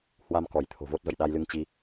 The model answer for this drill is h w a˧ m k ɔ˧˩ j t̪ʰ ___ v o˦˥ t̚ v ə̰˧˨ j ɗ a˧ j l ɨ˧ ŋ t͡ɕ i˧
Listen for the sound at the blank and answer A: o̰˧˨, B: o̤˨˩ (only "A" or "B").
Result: B